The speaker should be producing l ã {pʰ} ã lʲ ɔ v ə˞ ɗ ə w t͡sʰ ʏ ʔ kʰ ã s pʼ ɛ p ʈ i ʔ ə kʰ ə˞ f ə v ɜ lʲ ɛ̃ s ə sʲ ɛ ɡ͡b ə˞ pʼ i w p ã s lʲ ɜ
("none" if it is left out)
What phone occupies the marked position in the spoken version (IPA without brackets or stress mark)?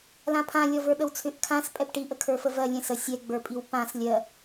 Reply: pʰ